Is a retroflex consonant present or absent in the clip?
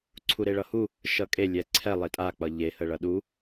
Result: present